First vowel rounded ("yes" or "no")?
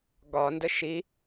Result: yes